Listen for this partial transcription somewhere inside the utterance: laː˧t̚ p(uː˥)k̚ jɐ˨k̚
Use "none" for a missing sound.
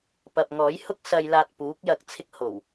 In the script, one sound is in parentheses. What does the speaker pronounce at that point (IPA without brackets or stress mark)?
uː˨˥